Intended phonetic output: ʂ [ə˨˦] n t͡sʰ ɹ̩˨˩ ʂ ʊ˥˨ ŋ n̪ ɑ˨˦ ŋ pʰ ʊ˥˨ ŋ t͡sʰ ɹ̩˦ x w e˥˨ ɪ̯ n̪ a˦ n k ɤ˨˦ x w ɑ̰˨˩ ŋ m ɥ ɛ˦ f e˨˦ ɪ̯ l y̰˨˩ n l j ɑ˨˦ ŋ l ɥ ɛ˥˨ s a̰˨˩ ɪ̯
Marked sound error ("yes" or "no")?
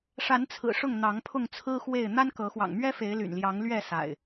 yes